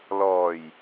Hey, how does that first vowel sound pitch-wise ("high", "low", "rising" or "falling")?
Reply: low